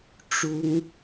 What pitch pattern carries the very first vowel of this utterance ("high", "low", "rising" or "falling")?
high